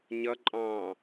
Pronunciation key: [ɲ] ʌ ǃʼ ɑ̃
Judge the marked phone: correct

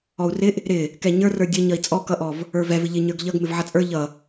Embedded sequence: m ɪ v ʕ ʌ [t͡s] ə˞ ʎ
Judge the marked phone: incorrect: t͡sʼ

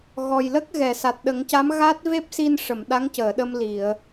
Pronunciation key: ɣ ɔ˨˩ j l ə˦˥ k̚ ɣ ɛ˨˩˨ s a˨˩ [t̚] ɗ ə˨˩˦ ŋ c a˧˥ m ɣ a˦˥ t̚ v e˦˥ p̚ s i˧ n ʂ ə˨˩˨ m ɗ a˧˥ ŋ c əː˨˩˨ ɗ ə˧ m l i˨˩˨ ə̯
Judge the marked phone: correct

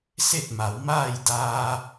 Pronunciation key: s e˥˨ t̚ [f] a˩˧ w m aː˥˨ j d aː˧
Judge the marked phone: incorrect: m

